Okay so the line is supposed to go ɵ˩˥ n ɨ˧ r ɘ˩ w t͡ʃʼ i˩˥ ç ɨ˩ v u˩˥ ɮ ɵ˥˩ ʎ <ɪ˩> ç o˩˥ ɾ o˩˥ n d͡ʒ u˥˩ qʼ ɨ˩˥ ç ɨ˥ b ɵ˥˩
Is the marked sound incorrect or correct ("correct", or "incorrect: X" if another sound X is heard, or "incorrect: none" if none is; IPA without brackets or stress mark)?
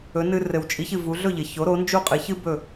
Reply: correct